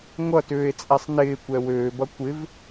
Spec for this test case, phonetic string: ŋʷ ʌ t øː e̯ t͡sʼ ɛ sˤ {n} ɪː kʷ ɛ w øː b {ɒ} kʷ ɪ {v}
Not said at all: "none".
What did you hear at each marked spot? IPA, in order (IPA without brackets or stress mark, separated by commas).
n, ʌ, v